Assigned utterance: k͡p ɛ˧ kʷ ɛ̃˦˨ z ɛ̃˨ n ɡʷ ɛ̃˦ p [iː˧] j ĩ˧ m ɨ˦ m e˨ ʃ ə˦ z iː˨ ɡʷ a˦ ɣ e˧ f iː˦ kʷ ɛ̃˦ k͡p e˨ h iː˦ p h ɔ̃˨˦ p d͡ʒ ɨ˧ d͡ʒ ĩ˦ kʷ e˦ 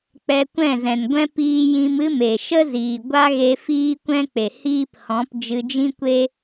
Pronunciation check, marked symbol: correct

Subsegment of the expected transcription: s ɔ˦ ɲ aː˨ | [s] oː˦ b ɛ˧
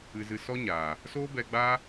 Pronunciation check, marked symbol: correct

